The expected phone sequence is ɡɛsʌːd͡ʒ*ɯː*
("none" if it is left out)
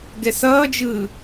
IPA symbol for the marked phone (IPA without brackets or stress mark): ɯː